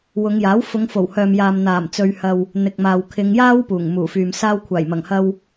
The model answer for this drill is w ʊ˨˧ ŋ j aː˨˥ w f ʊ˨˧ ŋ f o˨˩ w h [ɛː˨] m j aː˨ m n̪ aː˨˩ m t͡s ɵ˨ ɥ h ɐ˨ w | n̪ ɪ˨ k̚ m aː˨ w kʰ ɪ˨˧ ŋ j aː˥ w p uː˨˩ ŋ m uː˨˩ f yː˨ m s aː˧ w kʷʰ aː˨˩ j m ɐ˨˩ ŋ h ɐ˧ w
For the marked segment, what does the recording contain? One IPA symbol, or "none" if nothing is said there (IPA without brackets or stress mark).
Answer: œː˨